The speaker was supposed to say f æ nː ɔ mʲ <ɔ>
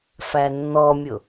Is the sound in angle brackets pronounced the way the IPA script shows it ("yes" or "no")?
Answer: no